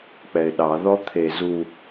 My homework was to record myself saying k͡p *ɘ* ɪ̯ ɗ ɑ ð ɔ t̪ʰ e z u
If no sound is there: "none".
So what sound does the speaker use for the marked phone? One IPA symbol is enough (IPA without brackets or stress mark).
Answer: ɛ